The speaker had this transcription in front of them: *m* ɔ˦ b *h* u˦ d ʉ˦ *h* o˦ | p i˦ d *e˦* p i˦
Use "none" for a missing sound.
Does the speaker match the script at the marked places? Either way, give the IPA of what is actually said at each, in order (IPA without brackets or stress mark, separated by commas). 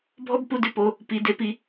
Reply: bʱ, p, p, e˦